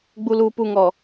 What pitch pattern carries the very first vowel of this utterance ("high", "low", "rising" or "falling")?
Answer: low